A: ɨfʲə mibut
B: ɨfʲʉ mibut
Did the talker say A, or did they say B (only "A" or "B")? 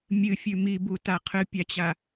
B